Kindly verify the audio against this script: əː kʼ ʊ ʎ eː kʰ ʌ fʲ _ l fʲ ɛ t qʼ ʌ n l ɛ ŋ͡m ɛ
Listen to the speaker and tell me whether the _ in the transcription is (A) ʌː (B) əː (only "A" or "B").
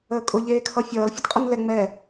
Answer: A